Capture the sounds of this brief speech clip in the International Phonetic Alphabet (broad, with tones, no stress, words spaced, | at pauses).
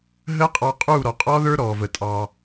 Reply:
ɦə˦˥qʼɑ˧qʼu˥˩ ɾɔ˩qʼɔ˦˥ðə˞˦˥ ɾɔ˩və˩ tʼɑ˩